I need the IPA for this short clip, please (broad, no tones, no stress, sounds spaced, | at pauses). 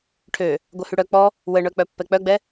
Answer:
ʈʰ ø | ɡʷ œ h y ɽ œ k͡p ɔ | w ə ɳ œ k͡p œ pː ɛ k͡p œ ɡ͡b ɛ